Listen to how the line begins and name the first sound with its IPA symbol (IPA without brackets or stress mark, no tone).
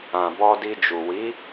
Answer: ã